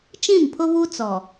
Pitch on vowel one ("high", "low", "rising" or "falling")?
falling